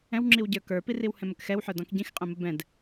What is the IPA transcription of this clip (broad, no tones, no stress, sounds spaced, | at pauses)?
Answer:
ɛ̃ w ŋ͡ǁ i w ɟ ə˞ k ə˞ p i r i w h ɛ̃ m ə k x ɛ w ħ ə˞ d ɔ̃ k ɟ ĩ x qʼ ɛ̃ m ə b ɛ̃ d